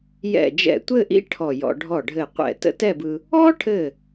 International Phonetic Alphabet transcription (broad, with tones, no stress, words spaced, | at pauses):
jɛ̰˧˩d͡ʒɛ̰˧˩tʷɘ˥˧ʔḭ˥ ʈʰɔ˧˩jɔ̰˧ ɖʱɔ˧˩ɖʱɘ˧˩ qʷɛ̰˧˩tə̰˥tɛ˥˧bɯ˧ | ɔ˥ʈʰɘ˧˩